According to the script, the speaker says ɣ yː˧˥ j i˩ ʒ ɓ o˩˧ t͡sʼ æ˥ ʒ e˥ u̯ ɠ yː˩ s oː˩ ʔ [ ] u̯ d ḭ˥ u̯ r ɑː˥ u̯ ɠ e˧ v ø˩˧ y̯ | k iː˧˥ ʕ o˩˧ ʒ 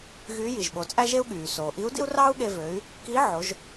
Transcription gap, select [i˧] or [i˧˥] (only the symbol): i˧˥